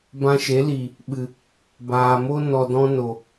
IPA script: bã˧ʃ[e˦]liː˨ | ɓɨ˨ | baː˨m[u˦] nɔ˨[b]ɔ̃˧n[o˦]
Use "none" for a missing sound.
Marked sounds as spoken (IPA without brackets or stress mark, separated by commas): e˨˦, o˦, d, o˨